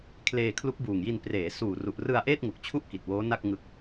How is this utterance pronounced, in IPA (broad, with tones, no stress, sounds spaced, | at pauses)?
kʰ l eː˧ kʰ l u˦˥ k̚ b uː˨˩ ŋ j i˧ n p r eː˩˦ s uː˨˩ r u˨˩ ʔ r ɯ˧ a̯ ʔ eː˥˩ t̚ ŋ u˨˩ k̚ t͡ɕʰ u˥˩ ʔ k i˨˩ t̚ w oː˦˥ n a˥˩ k̚ ŋ ɯ˦˥ k̚